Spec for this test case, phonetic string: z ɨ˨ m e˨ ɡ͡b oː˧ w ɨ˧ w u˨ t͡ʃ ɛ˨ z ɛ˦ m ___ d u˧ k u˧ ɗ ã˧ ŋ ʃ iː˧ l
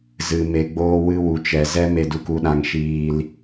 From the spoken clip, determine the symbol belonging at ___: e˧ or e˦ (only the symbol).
e˧